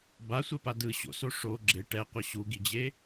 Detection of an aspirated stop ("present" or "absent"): absent